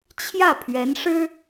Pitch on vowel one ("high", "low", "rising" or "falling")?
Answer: falling